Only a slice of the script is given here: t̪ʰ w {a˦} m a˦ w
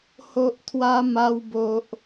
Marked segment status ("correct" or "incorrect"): correct